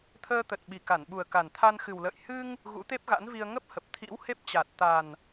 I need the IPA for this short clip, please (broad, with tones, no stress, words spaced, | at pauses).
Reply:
t̪ʰəː˧t̪ə˨˩t̚ ɓi˨˩ka˧˩nɓu˨˩ə̯ ka˨˩nt̪ʰa˧n xɨ˨˩wlə̰ː˧˨j hɨ˧ŋ | ɣṵ˧˥t̪e˦˥p̚ɣa̰˧˥nvi˧ə̯ ŋə˦˥p̚hə˨˩p̚ t̪ʰḭ˧˥whe˦˥p̚t͡ɕa˨˩t̚ t̪a˨˩n